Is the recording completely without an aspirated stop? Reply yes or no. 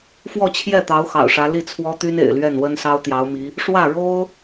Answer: no